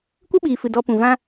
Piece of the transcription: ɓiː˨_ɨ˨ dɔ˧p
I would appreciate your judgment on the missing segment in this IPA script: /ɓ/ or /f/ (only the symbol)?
f